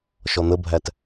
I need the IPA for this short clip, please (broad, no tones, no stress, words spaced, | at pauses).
ʃɔn̪əbʱæt